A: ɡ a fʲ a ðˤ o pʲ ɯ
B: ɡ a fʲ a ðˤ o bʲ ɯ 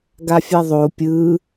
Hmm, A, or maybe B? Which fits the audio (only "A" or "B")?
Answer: A